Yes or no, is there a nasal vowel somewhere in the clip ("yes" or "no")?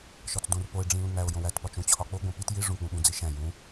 yes